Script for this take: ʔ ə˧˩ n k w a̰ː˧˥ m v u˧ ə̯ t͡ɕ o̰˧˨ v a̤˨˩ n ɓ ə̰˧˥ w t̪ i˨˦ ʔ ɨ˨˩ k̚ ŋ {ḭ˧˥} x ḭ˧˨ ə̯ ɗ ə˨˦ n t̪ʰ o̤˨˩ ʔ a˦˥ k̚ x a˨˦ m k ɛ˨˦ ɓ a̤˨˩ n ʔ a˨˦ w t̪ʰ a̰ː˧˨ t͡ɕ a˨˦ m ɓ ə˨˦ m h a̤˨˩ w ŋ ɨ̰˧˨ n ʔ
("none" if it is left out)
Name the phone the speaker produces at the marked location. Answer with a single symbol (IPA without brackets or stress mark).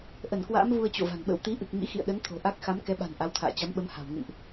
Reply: ḭ˧˥